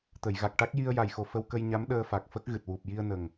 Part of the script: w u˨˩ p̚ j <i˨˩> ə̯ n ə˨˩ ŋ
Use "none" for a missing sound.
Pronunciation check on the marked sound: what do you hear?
i˧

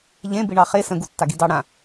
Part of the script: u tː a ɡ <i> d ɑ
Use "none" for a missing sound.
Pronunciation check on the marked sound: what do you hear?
i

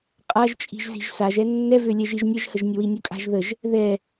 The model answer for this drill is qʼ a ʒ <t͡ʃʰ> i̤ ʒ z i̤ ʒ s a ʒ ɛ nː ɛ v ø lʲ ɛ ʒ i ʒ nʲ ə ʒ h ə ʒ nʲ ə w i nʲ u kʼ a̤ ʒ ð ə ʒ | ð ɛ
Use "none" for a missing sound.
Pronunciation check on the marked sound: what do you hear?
t͡ʃʼ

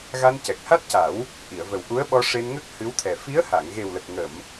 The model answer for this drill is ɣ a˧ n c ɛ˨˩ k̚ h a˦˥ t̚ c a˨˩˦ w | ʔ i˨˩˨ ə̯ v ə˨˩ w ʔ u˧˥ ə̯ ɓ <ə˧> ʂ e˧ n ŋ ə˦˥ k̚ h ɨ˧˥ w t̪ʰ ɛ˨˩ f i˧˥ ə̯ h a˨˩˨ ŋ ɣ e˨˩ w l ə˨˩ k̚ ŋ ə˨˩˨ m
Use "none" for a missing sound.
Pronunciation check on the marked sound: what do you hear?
ɔ˧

